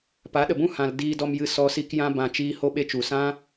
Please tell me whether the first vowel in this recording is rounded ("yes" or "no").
no